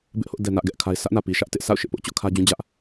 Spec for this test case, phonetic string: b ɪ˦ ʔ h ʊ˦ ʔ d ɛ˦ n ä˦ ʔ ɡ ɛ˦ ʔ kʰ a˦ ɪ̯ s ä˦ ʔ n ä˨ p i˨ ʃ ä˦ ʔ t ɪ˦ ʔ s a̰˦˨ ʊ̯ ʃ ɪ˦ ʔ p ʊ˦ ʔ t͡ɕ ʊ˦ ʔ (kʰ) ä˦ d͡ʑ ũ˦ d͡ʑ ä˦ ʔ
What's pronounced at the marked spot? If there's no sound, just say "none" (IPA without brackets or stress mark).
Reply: kʰ